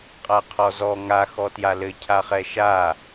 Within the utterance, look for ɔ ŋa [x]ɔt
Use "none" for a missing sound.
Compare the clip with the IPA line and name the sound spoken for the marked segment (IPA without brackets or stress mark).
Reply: x